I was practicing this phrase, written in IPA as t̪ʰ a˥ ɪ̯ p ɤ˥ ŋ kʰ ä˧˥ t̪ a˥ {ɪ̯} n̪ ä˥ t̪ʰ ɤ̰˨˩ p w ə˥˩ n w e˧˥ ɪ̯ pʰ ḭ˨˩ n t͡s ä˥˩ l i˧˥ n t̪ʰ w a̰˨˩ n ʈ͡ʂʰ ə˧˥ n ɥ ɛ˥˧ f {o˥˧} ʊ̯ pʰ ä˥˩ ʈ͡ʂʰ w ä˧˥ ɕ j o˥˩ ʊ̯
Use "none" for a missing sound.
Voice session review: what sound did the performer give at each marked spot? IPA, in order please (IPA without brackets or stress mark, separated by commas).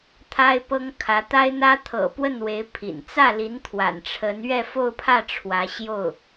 ɪ̯, o˥˧